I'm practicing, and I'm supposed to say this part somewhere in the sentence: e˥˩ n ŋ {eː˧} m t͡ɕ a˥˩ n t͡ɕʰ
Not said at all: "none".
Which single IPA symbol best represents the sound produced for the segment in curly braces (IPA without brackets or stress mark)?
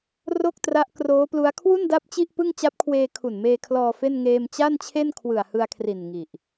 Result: eː˧